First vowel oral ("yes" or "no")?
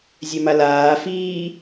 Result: yes